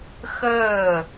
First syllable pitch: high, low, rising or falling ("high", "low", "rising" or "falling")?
falling